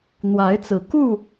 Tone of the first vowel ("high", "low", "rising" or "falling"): rising